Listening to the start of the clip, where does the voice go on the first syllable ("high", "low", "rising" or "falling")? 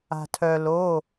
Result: low